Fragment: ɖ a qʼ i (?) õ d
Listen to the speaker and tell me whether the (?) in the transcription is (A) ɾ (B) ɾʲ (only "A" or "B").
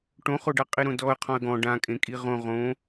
A